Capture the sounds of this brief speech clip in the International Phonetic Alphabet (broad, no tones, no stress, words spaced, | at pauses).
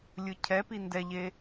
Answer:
lʲɯcʰɛpi ndɛʎe